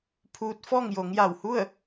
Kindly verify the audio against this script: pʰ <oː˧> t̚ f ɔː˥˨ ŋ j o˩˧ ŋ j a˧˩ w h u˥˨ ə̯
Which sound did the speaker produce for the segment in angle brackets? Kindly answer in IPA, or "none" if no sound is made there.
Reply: uː˧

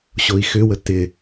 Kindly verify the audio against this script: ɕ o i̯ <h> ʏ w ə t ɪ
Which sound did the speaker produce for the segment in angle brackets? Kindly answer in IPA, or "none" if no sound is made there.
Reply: x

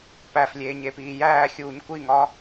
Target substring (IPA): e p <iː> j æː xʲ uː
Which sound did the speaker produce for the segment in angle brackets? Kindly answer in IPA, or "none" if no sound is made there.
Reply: iː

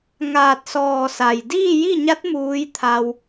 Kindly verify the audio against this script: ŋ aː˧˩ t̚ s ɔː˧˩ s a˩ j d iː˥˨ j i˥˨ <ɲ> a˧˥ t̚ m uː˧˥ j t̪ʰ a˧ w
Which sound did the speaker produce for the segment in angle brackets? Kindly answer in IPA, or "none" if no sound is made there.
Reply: ɲ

